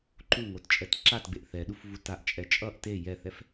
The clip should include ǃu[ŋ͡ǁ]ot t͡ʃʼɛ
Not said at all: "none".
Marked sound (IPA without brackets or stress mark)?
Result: ŋ